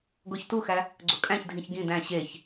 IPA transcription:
ɡ o ç t u x æ | ɡ͡ǀ o kʼ æ̃ ç dʱ ĩ ç ɡ ĩ d æ̃ ɕ e ç

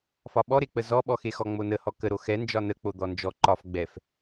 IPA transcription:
f ɒ ɓ ɔ ɾ e k͡p ə z ɔ ɓ ɔ x e x ɔ ŋ͡m o n ə h ɔ k ə ɾ o x ɛ n d͡ʒ ɒ n ə k͡p o d̪ ɔ n d͡ʒ ɔ ǃ ɒ f ɡ͡b ɛ f

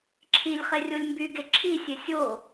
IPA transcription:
ǁʰ i lʲ χ e rʲ o lʲ m b y ɡ e ǁʰ i sʲ e sʲ o

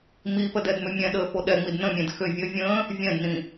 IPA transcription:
m i p ə d ɛ d m ʏ mʲ ɛ̃ ɗ əː f o ɗ ɛ ŋ͡m i d n ə̃ mʲ ɛ̃ d x ʏ vʲ ə vʲ ə̃ː | vʲ ɛ̃ d n ĩ

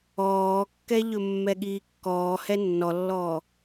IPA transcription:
ɔː kː ɛ ʎ ɵ mː ɛ ɠ iː kː ɔː h ɛ nː ɔ lː ɔː

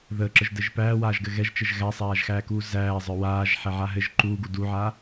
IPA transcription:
ð əː ǁ ə ʒ d ɘ ʒ p æː w aː ʒ ɡ ɘ ɣ ɛ ʒ t͡ʃ ɘ ʒ ɣ æ sˤ aː ʒ x æː k uː z æː zˤ ə˞ w aː ʒ ħ ɛ ʕ a ɦ ɘ ʒ ǃ uː ɡ u d u ʕ aː

